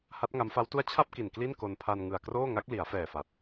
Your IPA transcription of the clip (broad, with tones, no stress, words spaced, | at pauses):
ha˦˥t̚ŋa˦˥mfa˦˥wtu˥˩a̯ t͡ɕʰa˥˩p̚ki˨˩n kli˥˩nko˧npʰa˧n ŋɯ˨˩a̯kroː˥˩ ŋa˦˥k̚li˩˦a̯fɛː˨˩fa˨˩t̚